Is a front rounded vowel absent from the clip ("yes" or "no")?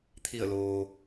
yes